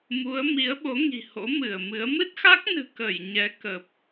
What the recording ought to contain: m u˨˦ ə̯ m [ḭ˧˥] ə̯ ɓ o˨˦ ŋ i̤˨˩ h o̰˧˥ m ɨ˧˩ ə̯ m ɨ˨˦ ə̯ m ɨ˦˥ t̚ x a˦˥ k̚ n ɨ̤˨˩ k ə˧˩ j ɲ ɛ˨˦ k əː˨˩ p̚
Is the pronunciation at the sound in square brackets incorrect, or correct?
incorrect